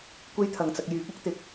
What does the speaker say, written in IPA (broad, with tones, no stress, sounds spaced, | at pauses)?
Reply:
kʷ e˥ j t̪ʰ ɐ˨ ŋ t͡s ɐ˧ k̚ j yː˨˥ k̚ ʊ˥ k̚ t̪ ɪ˨ k̚